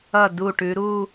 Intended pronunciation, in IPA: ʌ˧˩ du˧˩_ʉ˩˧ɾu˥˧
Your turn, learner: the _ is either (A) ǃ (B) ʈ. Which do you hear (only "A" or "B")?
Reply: B